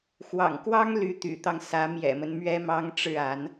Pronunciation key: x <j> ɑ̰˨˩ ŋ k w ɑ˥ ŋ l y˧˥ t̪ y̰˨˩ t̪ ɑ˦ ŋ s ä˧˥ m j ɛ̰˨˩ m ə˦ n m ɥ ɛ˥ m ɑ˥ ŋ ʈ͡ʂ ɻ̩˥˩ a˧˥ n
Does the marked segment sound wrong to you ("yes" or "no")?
yes